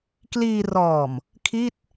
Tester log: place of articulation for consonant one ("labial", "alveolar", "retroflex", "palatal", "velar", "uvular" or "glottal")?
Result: velar